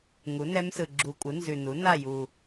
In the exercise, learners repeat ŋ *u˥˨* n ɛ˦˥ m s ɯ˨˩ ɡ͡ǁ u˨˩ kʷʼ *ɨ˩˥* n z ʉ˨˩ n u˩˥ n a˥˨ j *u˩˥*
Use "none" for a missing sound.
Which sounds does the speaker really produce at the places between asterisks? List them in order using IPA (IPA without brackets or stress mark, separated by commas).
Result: u˩˥, ɨ˩˥, u˨˩